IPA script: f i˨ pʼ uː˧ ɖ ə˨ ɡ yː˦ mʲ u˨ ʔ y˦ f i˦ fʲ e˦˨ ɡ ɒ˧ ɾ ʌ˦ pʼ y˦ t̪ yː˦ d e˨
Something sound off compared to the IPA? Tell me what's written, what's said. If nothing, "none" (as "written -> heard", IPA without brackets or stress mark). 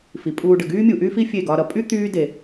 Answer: ʌ˦ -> ʌ˧